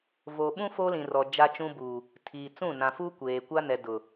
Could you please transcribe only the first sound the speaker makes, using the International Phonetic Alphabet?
v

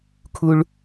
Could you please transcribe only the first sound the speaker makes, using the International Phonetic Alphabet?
kʰ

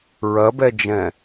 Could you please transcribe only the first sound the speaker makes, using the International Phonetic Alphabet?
ɹ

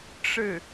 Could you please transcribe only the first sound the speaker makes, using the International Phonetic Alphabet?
ʈ͡ʂ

